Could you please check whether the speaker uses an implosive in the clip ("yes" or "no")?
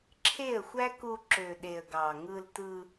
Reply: yes